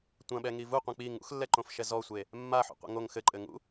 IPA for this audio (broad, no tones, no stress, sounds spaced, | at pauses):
tʷ ɐ̃ ɓ ɛ ŋ i v u qʷ ɐ̃ k͡p i ŋ ṵ x lː ɛ ǃ õ f ʃ ɛ z ɔ sʷ e | mː a ħ ṵ qʷ ḛ ŋ o ŋ x ɘ ǃʼ ɘ ŋ ṵ